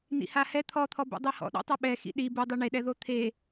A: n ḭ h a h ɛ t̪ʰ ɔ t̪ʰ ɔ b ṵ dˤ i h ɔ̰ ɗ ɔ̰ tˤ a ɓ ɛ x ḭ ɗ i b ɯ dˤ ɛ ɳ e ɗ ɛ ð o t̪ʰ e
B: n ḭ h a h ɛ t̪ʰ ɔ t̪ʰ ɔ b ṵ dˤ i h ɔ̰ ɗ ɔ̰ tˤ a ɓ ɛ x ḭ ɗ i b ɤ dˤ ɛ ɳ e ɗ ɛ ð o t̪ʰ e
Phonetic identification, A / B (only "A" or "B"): A